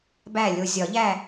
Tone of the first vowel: falling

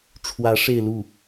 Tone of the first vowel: rising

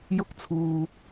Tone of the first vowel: high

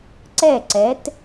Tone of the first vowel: falling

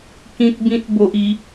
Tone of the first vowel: high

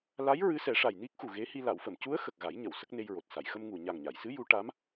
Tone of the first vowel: rising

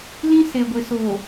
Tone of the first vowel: high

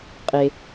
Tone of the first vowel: low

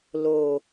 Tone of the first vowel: low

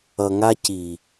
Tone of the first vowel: low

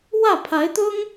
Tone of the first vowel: falling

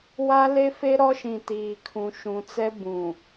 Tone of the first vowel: high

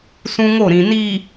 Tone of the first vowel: high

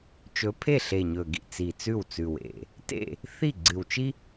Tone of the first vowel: rising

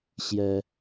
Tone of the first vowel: high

